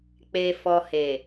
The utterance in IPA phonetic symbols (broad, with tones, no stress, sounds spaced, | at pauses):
k͡p e˨ f ɔ˨ h e˨